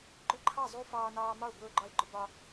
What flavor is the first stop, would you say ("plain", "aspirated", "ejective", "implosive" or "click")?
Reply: click